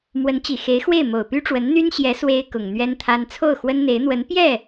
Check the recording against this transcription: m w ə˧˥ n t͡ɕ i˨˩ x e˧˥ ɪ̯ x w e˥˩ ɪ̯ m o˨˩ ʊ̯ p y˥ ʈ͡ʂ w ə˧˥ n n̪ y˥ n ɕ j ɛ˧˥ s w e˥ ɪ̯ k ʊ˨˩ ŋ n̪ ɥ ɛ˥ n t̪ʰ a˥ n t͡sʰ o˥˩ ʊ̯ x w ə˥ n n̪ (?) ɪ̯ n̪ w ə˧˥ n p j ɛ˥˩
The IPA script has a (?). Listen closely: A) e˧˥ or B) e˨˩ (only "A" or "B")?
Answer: A